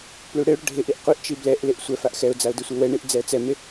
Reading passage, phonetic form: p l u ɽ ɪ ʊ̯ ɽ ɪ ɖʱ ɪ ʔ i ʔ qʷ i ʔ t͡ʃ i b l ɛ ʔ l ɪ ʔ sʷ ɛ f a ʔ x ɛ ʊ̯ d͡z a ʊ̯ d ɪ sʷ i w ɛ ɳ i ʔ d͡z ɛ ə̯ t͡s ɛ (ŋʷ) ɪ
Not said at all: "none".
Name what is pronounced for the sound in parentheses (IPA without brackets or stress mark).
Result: m